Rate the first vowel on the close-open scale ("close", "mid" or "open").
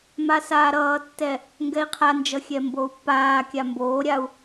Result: open